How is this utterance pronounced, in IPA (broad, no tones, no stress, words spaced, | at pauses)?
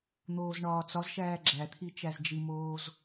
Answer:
n̪oːzɳɒːt͡sɒzʃæː ɡ͡ǁæt̪ʰi t͡ʃæzd͡ʒimoːz